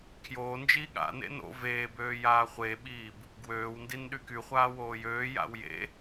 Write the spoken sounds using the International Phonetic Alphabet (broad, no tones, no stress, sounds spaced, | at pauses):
kʰ j oː n d͡ʒ iː ɠ a̰ n ḛ n o̰ v eː b øː j aː χʷ e ɓ iː b | ɡ w øː w n d i n ɗ y k y χʷ aː w oː j øː j a̰ w j ḛ